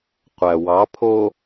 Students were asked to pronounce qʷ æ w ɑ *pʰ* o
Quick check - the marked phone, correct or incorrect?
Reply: correct